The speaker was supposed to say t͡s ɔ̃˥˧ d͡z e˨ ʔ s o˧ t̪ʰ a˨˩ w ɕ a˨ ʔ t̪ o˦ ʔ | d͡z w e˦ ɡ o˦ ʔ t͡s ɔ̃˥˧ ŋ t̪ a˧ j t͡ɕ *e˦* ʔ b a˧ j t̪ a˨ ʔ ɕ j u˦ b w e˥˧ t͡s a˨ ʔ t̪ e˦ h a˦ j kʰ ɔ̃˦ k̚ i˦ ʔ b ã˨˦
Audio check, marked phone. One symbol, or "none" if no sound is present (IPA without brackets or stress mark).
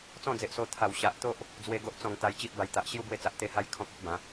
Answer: i˦